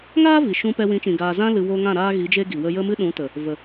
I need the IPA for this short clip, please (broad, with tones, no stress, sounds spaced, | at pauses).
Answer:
ŋ aː˦ v i˨ ʃ ũ˧ p ɛ˧ w ĩ˨˦ t͡ʃ ĩ˨ ɡ aː˨ z ã˧ l ɨ˨ w oː˧ ŋ ã˦˨ ɾ aː˦ ɣ i˨˦ d͡ʒ e˦ ɡ i˨ w ə˦ j ə˦ m ɨ˦ ɗ ũ˨˦ t ə˨ | v ə˨